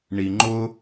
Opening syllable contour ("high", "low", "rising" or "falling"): low